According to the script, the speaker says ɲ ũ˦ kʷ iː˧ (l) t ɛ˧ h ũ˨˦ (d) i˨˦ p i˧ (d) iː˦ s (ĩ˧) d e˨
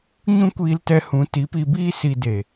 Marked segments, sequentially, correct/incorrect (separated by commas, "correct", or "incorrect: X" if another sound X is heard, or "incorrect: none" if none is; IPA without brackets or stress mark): correct, incorrect: t, incorrect: b, incorrect: i˧